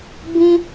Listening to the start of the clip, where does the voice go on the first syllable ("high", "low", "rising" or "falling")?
high